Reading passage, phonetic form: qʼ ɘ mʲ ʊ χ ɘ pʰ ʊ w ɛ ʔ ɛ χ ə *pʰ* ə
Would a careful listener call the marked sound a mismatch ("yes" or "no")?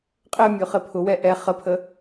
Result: no